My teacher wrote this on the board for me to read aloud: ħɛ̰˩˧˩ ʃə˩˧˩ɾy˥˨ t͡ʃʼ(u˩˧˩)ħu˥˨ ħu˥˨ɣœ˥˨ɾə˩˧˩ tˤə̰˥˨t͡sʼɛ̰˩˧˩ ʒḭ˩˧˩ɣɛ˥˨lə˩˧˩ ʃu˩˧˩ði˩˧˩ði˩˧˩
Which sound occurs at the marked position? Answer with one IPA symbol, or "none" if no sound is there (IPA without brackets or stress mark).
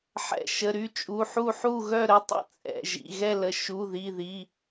u˩˧˩